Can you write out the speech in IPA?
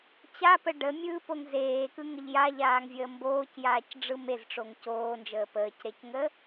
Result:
t͡ɕ a p ə ɖ ə mʲ ɯː p o ŋ z eː k ɯ ŋ ə ʎ j a ʎ aː ŋ vʲ əː m b oː c j aː c ɖ͡ʐ ɯ m e z ʈ͡ʂ o ŋ c oː n d͡ʒ əː p əː c ɾ e c ŋ ə

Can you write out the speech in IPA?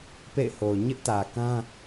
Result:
p ḛ˦˨ ɪ̯ h o˨ ʊ̯ ɲ ɪ˦ ʔ t ä˨ k ã˦

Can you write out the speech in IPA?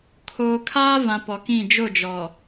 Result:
kʰ oː˨ kʰ aː˦ v ã˨ p ɔ˨ k ĩ˦˨ d͡ʒ o˦˨ d͡ʒ ɔ˨

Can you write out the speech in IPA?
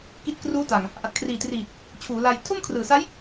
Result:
k i˦˥ t̚ k r uː˦˥ t a˨˩ ŋ | ʔ a˨˩ t̚ kʰ r iː˨˩ t r iː˨˩ t̚ | t͡ɕʰ uː˩˦ l a˧ j tʰ o˥˩ m kʰ r ɯː˨˩ s a˦˥ j

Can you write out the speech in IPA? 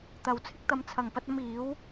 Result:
t̪ ɐ˨ w t͡sʰ ɪ˧ k̚ t̪ ɐ˨˥ m t͡sʰ ɐ˨˩ ŋ p ɐ˧ t̚ ɐ˧ m iː˨˥ w

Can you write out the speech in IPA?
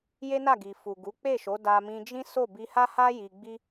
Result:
j e˦ n a˦˨ ɡ i˨ f u˨ ɡ u˨˦ k͡p e˦˨ ʃ o˨˦ d a˧ m ĩ˧ d͡ʒ ĩ˦ s o˦˨ b i˧ h a˦ h a˦ j i˧ ɡ͡b i˦

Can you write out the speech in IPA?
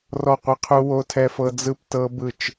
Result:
r ɔ˦˨ qʷ e˦ qʰ u˦ w o˦ tʰ ɛ˦ f ɤ˦ d͡z ɯ˦ p t ɤ˦ b ɯ˦˨ t͡ʃ

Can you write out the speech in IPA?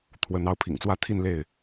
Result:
t̪ʰ w ə˨˦ n ɑ˨˦ ʊ̯ pʰ ḭ˨˩ ŋ t͡s w ä˥˨ t̪ʰ i˥˨ n l e˥˨ ɪ̯

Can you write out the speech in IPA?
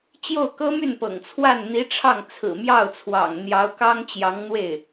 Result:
t͡ɕ j o˥˩ ʊ̯ k ɤ˥ m y˥˩ n p ɤ̰˨˩ ŋ t͡sʰ w a˥˩ n n̪ i˧˥ ʈ͡ʂʰ ɑ˥˩ ŋ t͡sʰ ɹ̩˨˩ m j ɑ˥˩ ʊ̯ t͡sʰ w ɑ̰˨˩ ŋ n̪ j ɑ˧˥ ʊ̯ k ɑ˥ ŋ t͡ɕ j ɑ˧˥ ŋ n̪ w e˥˩ ɪ̯

